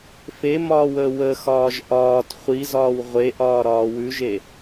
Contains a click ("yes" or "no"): no